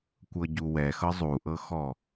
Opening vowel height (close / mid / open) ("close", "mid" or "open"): mid